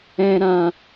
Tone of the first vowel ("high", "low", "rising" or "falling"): high